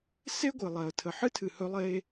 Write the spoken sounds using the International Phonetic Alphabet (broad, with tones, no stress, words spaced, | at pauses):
se˥ɡʷɨ˩lˠɛ˩ə̯tʰə˩ ħɨ˥tʰɨ˩hɵ˧lˠe˧